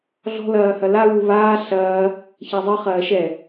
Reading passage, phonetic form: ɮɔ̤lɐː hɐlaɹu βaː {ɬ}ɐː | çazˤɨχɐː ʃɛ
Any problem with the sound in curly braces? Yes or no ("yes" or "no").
no